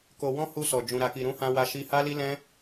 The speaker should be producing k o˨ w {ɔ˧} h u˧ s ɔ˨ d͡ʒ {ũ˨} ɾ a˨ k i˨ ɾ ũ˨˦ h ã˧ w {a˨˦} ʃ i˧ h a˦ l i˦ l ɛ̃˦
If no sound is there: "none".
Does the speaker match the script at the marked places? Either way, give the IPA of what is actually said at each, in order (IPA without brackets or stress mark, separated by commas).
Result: ɔ̃˧, ũ˨, a˧